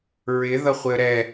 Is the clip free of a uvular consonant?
no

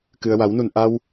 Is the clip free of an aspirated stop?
yes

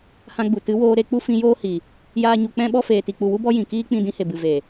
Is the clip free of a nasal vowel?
no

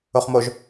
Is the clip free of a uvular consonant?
no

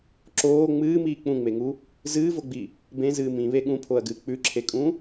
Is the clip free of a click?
no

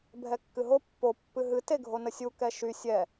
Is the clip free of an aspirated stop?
yes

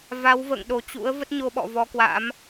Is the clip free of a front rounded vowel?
yes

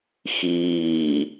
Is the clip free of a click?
yes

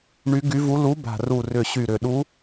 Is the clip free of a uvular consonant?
yes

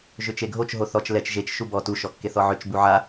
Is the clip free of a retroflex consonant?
yes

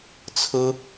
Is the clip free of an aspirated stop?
no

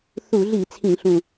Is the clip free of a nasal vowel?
no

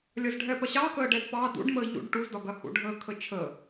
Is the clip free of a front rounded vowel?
yes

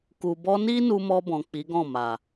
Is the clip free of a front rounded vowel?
yes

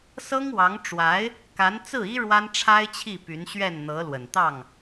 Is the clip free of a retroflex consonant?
no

